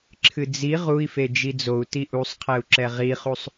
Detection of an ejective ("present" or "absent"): absent